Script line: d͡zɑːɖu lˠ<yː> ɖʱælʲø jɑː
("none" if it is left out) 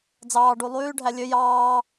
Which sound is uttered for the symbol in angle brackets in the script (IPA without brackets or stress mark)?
yː